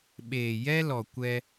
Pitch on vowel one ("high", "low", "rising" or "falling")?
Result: low